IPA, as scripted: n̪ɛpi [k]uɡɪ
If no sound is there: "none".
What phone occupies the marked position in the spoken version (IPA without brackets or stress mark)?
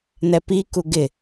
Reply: k